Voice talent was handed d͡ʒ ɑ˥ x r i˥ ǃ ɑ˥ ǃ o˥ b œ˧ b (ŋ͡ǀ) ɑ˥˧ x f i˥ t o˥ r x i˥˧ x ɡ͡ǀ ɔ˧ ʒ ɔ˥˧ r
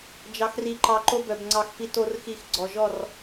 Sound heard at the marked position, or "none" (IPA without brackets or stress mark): ŋ͡ǀ